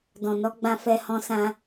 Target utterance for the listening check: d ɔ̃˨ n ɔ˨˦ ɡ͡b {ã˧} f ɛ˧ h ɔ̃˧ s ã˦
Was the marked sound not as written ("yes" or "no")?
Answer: no